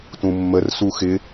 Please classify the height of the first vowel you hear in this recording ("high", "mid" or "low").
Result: high